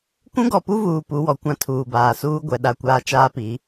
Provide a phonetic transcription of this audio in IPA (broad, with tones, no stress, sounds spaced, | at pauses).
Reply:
kʷ ũ˦ ɡ ɔ˨ p u˦ v uː˨ p u˨˦ w ɔ˨ kʷ ã˦ tʰ uː˨ b aː˨ s uː˦ ɡʷ ɛ˨ ɗ a˨ kʷ aː˨ t͡ʃ aː˦ p i˨˦